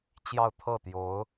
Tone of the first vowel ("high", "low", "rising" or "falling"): falling